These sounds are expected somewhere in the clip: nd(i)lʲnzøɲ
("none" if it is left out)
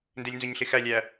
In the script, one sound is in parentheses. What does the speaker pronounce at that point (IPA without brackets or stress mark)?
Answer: e